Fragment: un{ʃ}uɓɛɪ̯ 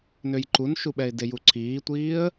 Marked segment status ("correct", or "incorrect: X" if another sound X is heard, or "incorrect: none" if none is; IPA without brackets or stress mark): correct